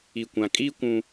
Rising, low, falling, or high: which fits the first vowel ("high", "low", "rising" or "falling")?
low